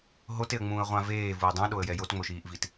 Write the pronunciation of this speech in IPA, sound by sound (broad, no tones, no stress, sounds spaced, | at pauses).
ɦ o t e ə̯ ŋ͡m ũː ə̯ ʁʷ ã v eː v u ə̯ dˤ ũ ɗ o ə̯ j ɛ j o t ŋ͡m o ʃ iː ʔ v i t